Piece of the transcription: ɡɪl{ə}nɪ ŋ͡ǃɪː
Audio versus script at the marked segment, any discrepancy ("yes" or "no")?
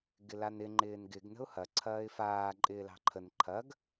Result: yes